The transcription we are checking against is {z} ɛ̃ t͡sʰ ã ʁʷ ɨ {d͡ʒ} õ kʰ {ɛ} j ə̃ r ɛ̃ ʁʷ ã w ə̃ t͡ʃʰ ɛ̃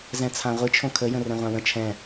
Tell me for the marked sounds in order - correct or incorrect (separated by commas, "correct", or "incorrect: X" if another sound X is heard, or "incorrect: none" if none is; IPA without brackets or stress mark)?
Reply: correct, incorrect: t͡ʃʰ, incorrect: ə